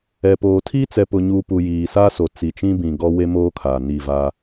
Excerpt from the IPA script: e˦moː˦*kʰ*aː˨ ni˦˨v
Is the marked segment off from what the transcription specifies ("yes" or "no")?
no